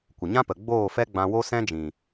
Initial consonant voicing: voiceless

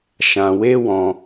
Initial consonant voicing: voiceless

